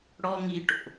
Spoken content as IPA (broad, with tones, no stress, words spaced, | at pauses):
ɽɔ˦ŋi˧ʈo̰˨